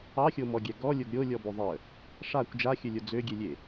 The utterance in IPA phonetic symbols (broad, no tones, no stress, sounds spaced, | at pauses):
ɑ xʲ o m ɔ ɡʲ ɛ ɡ ɔ lʲ o ɡ ɾʲ o lʲ ɔ b o ðˤ ə | ʂ a kʷ d͡ʒ a xʲ ɵ lʲ o d͡z ø ɡʲ e lʲ e